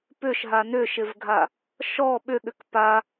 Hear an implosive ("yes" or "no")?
yes